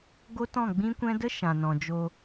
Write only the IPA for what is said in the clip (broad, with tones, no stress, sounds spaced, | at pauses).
ɡ o˦ t ɔ̃˦˨ ɡ͡b ĩ˦ kʷ ɛ̃˦ d ə˦ ʃ ã˨ n ɔ̃˨ d͡ʒ o˧